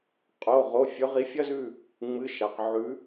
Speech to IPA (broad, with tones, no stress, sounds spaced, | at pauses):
qʼ o˩˧˩ ʁ o˩˧˩ fʲ ɵ˨˦ ʁ i˨˦ fʲ ɐ˦ z ʉ˦˨ | ŋ͡m ɨ˩˧˩ ʃ a˩ q ʕ ʉ˨˦